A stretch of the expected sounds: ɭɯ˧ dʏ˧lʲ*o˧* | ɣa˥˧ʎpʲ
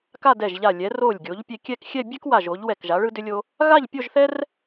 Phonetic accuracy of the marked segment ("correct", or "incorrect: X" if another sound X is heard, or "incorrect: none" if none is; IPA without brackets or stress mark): correct